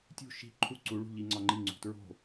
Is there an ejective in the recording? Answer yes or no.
no